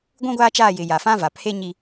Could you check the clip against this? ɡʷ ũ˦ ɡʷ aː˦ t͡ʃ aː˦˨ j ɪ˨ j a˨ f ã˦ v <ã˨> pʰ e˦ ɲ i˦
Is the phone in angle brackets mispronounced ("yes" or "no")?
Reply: yes